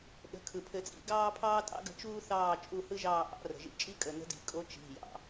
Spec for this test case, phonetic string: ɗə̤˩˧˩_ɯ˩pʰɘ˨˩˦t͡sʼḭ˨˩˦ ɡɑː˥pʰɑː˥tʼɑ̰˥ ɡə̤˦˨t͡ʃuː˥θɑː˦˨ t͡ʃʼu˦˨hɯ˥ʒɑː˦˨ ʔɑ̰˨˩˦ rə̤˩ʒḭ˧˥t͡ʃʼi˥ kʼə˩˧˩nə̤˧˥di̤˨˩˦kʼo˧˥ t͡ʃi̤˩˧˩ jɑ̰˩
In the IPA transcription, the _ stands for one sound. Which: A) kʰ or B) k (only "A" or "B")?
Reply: A